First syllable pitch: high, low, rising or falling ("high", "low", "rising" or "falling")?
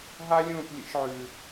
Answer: high